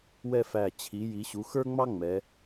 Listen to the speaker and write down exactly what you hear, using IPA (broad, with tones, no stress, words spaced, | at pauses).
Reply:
wɛ˥˧fæ˧˩ t͡ɕʰi˩˧ ji˩˧ɕu˩˧xə˞˥ŋ͡mɑ˥ ŋ͡mɛ˩˧